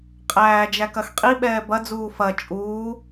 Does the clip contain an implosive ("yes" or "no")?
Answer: yes